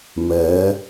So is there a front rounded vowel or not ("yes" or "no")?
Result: no